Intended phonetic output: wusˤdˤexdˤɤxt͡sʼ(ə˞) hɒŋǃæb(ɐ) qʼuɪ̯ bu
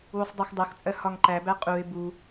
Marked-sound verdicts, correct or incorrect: incorrect: ɜ, incorrect: æ

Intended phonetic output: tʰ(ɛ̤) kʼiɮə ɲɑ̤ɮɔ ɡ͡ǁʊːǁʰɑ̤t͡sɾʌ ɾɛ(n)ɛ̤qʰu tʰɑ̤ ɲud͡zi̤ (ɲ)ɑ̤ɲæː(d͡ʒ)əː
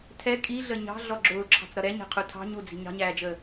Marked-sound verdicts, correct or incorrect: incorrect: ɛ, incorrect: ɲ, correct, correct

